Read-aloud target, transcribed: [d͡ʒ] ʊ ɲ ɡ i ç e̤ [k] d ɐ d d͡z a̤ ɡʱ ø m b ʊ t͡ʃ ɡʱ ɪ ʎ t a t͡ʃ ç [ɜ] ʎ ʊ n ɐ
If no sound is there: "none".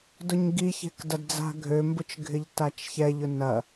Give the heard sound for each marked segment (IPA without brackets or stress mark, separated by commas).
d, k, ɛ